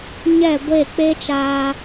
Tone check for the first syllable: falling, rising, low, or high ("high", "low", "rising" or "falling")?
falling